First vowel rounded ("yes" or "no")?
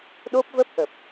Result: yes